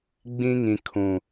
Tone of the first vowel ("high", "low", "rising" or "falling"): high